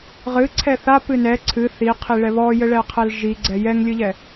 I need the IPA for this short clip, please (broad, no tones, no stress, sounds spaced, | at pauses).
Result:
ʁ ɨ ǀʰ ɛ θ a p ɨ n ɛ ǀʰ ɨ θ i qʰ i ɭ ɛ β ɔ j ɘ ɭ ɛ qʰ ɛ l ʒ i ɡ͡ǀ ɛ j ɛ ŋ lʲ ɨ ʎ ɛ